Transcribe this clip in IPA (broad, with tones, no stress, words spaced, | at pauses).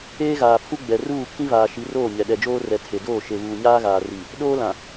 eː˦ɣaː˨pʰu˦ ɡ͡bɛ˨ruː˦˨ kʰĩ˦vaː˨ʃi˨˦roː˦˨ ɲɛ˨ ɗɛ˨d͡ʒoː˦rɛ˨ tʰe˨doː˦˨ ʃe˨βuː˨ɲaː˦ɣaː˨ ri˨ | ɗoː˦lã˨